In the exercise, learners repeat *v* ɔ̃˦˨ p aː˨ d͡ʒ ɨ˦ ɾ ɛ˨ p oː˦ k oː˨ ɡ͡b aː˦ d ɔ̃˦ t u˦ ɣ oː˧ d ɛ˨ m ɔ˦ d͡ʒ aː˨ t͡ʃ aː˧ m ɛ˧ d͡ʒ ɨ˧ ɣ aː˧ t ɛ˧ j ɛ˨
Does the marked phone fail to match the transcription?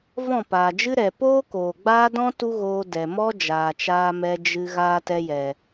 no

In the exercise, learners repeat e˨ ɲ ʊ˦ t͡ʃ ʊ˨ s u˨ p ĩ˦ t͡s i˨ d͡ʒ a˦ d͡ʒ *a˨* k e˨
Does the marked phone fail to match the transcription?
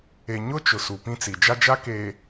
yes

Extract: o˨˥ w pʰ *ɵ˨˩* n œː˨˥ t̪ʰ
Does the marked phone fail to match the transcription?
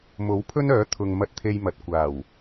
yes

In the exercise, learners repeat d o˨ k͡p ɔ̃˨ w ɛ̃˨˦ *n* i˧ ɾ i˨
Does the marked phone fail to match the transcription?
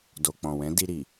yes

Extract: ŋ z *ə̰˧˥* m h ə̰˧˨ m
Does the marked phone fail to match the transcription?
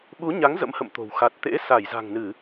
no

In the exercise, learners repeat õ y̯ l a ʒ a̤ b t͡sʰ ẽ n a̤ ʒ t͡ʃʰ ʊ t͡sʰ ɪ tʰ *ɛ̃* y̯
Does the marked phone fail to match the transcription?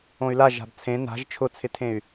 yes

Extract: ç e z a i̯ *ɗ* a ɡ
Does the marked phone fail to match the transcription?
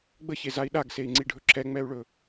no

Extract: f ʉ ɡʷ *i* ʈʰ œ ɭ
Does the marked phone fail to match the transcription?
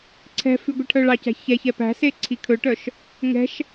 no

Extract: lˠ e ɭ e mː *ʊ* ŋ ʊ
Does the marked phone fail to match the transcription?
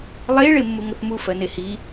yes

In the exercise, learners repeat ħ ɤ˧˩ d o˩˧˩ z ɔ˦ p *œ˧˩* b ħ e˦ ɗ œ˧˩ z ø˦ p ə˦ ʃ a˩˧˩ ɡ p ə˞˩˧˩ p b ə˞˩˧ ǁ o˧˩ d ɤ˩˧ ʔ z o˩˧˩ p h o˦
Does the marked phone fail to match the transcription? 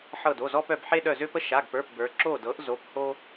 no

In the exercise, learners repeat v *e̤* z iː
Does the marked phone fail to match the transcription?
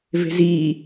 no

